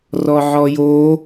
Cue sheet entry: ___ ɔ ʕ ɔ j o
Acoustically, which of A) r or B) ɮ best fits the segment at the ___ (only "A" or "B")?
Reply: A